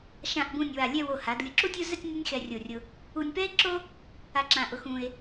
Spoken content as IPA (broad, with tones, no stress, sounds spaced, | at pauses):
ʃ ã˧˩ ʔ b ũ˧˩ nʲ w a˧˩ lʲ ɛ˥˧ w o˧˩ h a˩˧ d lʲ ʊ˧˩ ǁ u˥˧ tʲ u˥˧ z ɛ˥˧ tʲ nʲ a˥ nʲ x ɛ˧ rʲ o˧˩ rʲ ʊ˧ | u˧ nʲ p ɛ˥ e̯ ǁ o˥ | a˧ ǁ ã˧˩ ʔ ʊ˧ x ũ˧ e̯